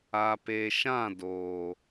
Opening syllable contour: low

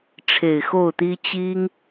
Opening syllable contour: low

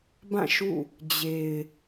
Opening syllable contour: falling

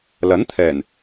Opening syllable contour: rising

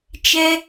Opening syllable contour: high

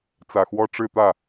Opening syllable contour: low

